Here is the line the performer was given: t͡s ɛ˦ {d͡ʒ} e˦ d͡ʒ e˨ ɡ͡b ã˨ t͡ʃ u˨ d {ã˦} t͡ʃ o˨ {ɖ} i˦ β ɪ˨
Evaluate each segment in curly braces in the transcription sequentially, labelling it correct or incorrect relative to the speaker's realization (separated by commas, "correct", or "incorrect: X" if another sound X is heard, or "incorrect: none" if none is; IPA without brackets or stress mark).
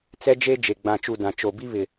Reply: correct, incorrect: ã˨, incorrect: b